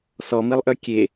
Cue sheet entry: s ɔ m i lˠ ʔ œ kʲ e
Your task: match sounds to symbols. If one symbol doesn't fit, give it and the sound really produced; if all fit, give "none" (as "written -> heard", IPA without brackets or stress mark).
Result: none